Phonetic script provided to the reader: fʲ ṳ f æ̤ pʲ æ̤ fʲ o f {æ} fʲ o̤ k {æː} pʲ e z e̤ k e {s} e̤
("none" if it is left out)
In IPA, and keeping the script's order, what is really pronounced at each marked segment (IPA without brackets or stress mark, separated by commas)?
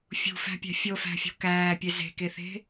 æ̤, æː, θ